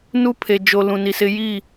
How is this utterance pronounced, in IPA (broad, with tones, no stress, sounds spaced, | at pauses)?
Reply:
n u˦ pʰ e˨ d͡ʒ o˨ l ũ˨ n i˨ s ɪ˦ j i˦˨